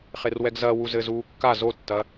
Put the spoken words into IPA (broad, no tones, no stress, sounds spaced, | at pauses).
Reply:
χ e r w ɛ ɡ z ɐ w u z ɘ z uː kː a z o tː ɐ